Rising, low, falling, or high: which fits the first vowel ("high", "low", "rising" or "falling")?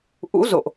rising